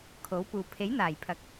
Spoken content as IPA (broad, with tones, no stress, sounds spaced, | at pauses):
kʰ o˨˥ w p uː˨ pʰ e˨˥ j n̪ aː˨˩ j pʰ ɐ˨˥ k̚